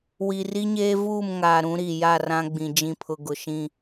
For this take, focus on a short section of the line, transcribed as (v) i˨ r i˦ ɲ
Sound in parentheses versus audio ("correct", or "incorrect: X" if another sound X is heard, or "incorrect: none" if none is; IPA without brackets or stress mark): incorrect: w